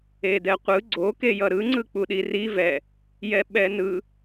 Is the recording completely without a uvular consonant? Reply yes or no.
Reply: no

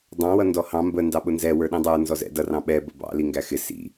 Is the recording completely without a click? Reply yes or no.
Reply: yes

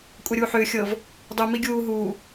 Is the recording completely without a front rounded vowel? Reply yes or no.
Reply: no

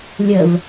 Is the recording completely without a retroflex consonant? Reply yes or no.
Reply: yes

